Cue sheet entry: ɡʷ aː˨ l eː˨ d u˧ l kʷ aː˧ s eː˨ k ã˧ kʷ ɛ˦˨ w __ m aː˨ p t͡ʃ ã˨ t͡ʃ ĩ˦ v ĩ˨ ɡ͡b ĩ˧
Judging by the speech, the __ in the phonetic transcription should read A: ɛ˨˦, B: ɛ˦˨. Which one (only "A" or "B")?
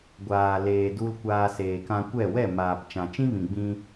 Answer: B